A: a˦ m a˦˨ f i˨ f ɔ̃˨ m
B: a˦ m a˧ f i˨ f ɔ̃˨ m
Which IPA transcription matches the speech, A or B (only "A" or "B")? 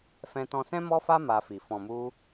B